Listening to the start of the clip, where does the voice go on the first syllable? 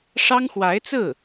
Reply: high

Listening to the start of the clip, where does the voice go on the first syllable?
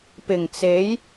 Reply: low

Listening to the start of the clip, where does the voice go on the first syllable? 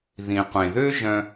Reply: low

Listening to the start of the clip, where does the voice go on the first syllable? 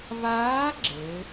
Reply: rising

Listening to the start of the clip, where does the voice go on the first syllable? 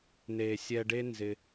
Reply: low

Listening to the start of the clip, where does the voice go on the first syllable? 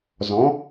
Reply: rising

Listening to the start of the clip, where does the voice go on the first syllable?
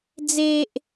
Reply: high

